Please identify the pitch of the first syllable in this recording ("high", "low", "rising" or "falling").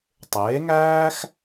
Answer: rising